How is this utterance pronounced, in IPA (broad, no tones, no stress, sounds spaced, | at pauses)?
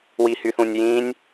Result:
w i h y θ ũ nʲ j ĩ nʲ